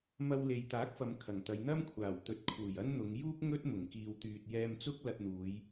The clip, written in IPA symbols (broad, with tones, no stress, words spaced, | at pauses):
mɐ˧wle˨˧jt̪aː˨˥k̚fɐ˨˧m kʰɐ˨˩ŋt̪ɐ˨˧j n̪ɐ˥mkʷʰaː˨˩w t̪ɵ˧t̚ kʰuː˨˩jɐ˥nn̪ʊ˨˧ŋ juː˥k̚ ŋɵ˥t̚ mʊ˨˩ŋkiː˨wt̪yː˨t̚ jɛː˧mt͡sʊ˥k̚ lɐ˧t̚n̪uː˨˧j